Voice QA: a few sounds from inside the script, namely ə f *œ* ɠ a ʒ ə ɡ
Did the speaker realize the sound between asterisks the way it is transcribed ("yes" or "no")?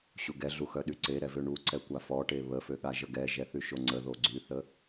no